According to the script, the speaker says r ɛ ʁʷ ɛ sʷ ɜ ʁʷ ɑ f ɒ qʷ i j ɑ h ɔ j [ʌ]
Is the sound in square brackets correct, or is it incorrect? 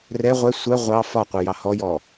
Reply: incorrect